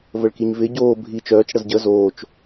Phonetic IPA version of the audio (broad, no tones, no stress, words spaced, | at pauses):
vəɭkiɲvɪ ɟoː bʱi t͡ʃœːt͡ʃ ɽəzɟə zoːt͡ʃ